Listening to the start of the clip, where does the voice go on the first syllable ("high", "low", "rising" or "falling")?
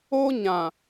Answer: high